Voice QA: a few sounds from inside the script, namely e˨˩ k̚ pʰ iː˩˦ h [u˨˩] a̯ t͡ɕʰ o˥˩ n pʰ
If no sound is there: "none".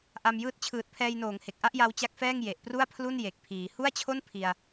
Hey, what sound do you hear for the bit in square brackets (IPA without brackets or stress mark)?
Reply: u˥˩